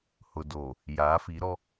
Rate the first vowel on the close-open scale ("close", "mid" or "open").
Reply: close